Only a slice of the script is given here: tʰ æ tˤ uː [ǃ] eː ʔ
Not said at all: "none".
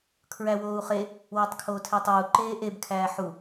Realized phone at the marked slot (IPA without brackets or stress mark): ǃ